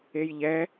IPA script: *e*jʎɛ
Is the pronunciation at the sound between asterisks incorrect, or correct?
correct